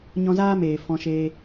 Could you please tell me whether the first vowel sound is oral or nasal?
nasal